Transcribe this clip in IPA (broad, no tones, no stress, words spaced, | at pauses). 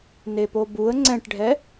nepobuə̯ ŋ͡ǀɛ̃ʈɖʱɛ